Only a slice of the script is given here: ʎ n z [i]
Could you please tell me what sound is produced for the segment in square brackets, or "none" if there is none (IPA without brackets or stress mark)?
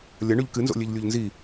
i